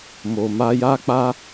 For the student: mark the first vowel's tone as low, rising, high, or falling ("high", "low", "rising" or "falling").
low